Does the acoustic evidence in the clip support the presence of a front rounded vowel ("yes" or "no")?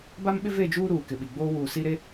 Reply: no